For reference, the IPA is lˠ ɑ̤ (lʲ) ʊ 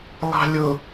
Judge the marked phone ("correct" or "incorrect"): correct